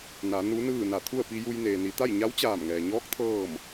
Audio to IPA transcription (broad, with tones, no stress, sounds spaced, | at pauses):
n a˩˧ n u˧˥ n ɯː˥˨ n a˧˩ t̪ʰ u˥˨ ə̯ p i˧ j u˧ j n eː˩ n i˩˧ t̪ a˥˨ j ɲ a˧˥ w t͡ɕ aː˧˩ m ŋ ɛː˩ ɲ ɔː˧˥ k̚ t̪ʰ ɤː˥˨ m